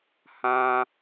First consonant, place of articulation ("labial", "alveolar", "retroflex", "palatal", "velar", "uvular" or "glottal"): glottal